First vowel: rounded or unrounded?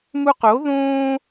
rounded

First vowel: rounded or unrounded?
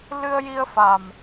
unrounded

